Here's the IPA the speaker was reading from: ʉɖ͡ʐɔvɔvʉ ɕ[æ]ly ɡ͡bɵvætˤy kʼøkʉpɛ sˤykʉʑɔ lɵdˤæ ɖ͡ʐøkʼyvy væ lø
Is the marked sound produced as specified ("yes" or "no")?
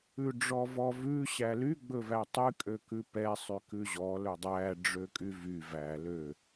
yes